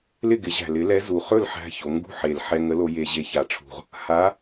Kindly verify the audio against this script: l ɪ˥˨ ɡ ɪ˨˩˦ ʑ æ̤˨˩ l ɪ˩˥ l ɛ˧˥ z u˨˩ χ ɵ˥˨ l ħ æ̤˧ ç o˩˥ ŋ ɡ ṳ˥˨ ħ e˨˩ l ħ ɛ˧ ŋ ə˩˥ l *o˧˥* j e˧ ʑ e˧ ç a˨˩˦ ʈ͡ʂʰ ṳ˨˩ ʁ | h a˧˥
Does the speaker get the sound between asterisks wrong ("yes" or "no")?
yes